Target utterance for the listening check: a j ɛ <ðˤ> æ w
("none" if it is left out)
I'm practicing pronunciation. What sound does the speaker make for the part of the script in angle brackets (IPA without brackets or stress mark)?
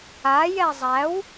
zˤ